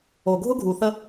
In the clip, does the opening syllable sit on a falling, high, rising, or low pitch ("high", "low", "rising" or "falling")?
low